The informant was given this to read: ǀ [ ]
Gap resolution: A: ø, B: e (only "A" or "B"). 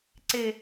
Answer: B